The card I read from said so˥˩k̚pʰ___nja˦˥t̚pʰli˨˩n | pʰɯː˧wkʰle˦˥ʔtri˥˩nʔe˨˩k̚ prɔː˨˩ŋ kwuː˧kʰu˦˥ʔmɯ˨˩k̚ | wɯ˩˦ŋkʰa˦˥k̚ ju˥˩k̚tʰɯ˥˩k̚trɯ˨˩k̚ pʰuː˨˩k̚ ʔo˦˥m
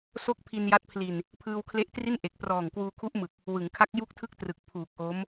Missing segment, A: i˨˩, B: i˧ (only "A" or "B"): B